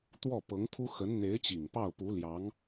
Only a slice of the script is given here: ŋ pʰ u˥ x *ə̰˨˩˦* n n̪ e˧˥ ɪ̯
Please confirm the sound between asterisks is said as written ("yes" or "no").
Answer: no